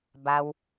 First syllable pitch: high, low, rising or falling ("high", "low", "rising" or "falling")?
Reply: low